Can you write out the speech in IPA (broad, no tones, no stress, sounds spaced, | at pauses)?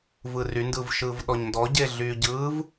v ɯ r y n d ɯ v ʃ ɯː v ɗ ɔ ɲ n d ɔ ɟ e ɮ yː ɟ ɯː v